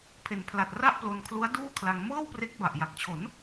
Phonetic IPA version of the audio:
pʰe˩˦npʰla˨˩t̚ ra˥˩ʔplo˧nkʰlu˦˥a̯ duː˥˩ kʰla˧ŋ mɤː˥˩wpre˦˥k̚ ba˨˩ʔja˨˩k̚t͡ɕʰo˩˦n

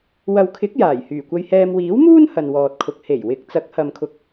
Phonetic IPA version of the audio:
wɐ˨wkʰɪ˨˥k̚ jaː˨˩j hyː˨˩kʷɐ˧jhɛː˧m wiː˨˥wmuː˥n hɐ˨nwɔː˨t̚kʰʊ˨k̚ he˨˩j wɪ˨˥k̚ t͡sɐ˨˥k̚hɐ˨mkʰʊ˨k̚

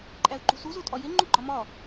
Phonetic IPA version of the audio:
ǃʼæʊ̯ǃṳsuz otʼɒje ŋ͡ǃuɡ͡ǃɒmɒ

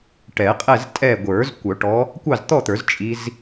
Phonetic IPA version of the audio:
ʈɛ˨˩˦qʼɛ˥˨ztʼɛ˥˨ ɡʷə˞˨˩˦z kʷœ˨˩˦ʈɔ˨˦ | kʷɑ˥˨zt̪ɔ˥˨t̪ə˞˨˩˦z t͡ʃʼi˦˥z

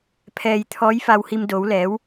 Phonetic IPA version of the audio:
pʰɛː˧jt̪ʰɔː˧˥j fa˧whi˧m doː˧˥wlɛː˧˥w

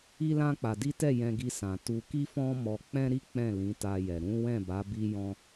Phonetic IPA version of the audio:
i˦lã˦k͡pa˧di˦ tɛ˦˨jɛ̃˧ɡi˧sã˨ tu˧ki˦fɔ̃˦ mɔ˧k͡pɛ̃˦ɾi˦ k͡pɛ̃˦˨lĩ˨˦ta˧jɛ˨ ɾũ˨˦ wɛ̃˦˨ba˨˦ bi˧jɔ̃˧

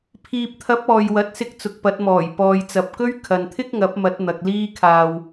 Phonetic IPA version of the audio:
pʰiː˨p̚t̪ʰɐ˨˥p̚ ɔː˨jwɐ˨˥t̚sɪ˧k̚ t͡sʊ˨k̚pɐ˨˥t̚mɔː˨˩j pɔː˨jt͡sɐ˨p̚kɵ˥ɥ kʰɐ˨nt̪ʰɪ˥k̚ŋɐ˨˥p̚mɐ˨˥t̚ n̪ɐ˧k̚ liː˥kʰaː˧w

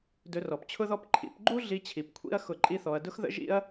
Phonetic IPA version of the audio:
dɵ˧rɔ˨pt͡ɕʰʊ˦ðɔ˦p ǃʰḭ˧pɡ͡ǃu˦ ɮi˧t͡ɕʰi˨p kʷʰḭ˦ɐ̯ xʊ˦˨ǃʼi˦θɔ˧ɐ̯ dʊ˦xðə̰˦ ʒḭ˦ɐ̯

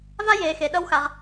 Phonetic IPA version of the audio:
va˦jeː˨xe˨ ɗʌ˦wxa˨ʁ

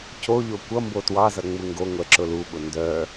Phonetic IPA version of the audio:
coʎo kʷʌ mbotwɑzʌ ŋ͡muŋɡoŋʷɛ ǁʊluɓʊ ndœ

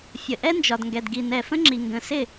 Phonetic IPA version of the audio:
fʲə˨ʔɛ˦nd͡ʒɒ˨dŋɡɛ˨d ɡi˨nɛ˨fə̃˦ŋ͡ǁi˨ ŋɡə̃˨sɪ˦˨

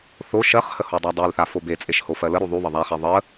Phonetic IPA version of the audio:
θo ʃɜχhə hodˤadˤelθa fobet͡sʼeʃ hofɜləɾu ðˤuβə ðˤaχe ðˤə

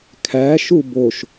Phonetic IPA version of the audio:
kʰæʃu boʃ

